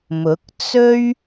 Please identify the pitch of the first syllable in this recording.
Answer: rising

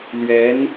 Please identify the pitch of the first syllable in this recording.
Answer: rising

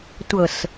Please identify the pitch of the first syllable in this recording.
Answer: low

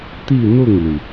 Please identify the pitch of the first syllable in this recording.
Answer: falling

